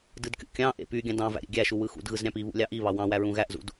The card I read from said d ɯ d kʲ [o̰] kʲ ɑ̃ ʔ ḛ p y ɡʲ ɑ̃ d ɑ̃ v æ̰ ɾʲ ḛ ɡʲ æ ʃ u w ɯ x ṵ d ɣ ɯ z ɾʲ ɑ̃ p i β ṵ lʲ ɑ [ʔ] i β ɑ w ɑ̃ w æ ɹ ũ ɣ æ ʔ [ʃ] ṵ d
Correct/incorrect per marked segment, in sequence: incorrect, correct, incorrect

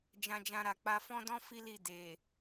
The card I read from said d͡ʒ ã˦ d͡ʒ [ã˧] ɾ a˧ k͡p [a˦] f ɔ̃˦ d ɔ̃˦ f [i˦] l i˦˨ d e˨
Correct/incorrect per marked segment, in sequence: incorrect, incorrect, correct

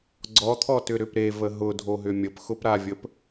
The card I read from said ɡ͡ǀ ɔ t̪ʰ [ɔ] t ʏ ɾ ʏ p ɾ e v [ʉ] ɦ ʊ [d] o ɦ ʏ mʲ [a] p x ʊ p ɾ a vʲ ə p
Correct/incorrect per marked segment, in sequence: correct, incorrect, incorrect, incorrect

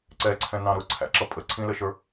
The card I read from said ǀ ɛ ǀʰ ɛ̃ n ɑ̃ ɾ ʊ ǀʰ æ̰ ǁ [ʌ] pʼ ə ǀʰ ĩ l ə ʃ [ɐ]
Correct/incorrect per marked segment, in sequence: correct, incorrect

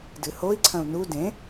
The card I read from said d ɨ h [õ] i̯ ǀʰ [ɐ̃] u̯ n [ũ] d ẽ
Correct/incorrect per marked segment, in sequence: incorrect, correct, incorrect

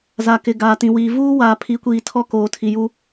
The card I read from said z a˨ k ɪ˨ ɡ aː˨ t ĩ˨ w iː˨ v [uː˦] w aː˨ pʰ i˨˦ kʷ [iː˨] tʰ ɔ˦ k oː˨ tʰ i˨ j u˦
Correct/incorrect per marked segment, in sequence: correct, correct

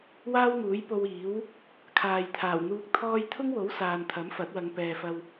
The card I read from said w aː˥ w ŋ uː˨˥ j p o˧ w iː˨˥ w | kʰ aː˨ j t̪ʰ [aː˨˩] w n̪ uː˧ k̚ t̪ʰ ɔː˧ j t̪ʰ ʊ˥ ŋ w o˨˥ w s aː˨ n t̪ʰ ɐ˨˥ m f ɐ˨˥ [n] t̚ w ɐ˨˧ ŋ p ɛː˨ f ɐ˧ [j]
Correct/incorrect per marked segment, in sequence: correct, incorrect, incorrect

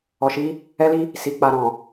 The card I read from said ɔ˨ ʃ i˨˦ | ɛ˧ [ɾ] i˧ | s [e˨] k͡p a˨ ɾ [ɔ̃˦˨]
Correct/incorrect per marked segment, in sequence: incorrect, incorrect, incorrect

